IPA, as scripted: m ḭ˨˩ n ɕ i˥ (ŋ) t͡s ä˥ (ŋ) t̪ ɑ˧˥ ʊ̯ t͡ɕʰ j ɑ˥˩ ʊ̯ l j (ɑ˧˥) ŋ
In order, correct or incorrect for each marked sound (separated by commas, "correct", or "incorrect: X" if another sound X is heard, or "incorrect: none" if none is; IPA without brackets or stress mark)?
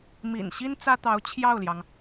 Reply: incorrect: n, incorrect: none, incorrect: ɑ˩